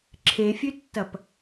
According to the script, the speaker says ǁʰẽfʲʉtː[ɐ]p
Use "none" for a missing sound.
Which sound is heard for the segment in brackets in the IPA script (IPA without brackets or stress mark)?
ɐ